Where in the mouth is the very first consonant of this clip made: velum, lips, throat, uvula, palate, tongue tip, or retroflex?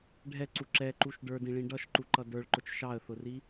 retroflex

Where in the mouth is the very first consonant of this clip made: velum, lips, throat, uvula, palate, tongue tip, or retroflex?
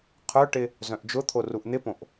uvula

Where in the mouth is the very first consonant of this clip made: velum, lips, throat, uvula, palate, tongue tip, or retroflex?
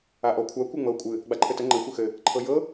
throat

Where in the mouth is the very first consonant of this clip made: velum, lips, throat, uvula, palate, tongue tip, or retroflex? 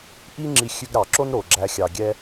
throat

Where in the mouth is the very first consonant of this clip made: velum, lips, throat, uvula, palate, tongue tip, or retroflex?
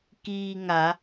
velum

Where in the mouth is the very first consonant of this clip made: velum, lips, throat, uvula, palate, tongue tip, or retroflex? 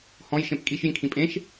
throat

